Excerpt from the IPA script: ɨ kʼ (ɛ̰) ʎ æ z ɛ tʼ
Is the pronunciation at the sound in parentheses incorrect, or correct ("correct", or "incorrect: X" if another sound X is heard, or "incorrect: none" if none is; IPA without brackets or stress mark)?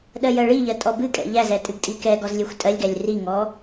correct